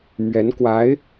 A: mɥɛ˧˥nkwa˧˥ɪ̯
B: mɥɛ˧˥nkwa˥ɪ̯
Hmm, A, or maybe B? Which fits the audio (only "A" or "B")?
A